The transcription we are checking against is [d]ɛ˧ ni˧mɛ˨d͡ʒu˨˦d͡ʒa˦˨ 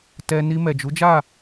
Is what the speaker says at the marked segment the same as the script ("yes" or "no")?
no